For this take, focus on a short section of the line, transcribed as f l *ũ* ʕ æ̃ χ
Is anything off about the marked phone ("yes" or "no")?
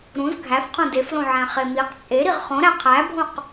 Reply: yes